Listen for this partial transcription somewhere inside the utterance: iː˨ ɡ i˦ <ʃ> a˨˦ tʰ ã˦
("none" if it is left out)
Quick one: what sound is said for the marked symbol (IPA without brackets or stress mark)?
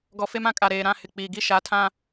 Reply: ʃ